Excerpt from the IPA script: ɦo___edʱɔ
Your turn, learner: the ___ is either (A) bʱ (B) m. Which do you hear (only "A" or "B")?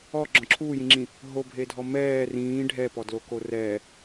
A